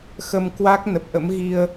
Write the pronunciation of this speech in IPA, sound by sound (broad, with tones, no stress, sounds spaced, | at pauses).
x ə˧ m k w a˦˥ k̚ n ə˨˩ p̚ ʔ ə̰˧˥ m ɣ i˧ ə̯